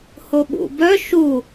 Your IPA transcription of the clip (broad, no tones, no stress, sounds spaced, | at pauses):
h o ɓ ṵ b œ ʃ u